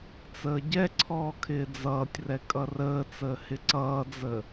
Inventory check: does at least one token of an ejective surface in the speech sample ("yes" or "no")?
yes